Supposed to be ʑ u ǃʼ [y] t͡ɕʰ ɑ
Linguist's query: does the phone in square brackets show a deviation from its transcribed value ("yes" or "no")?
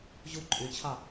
no